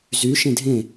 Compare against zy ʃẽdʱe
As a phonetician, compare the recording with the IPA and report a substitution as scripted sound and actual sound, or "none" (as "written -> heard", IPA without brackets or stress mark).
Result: e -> ẽ